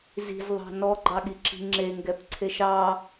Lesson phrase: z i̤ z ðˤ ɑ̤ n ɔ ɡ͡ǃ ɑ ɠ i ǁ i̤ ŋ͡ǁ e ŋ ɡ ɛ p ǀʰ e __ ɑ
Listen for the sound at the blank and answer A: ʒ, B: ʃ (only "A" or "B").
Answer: B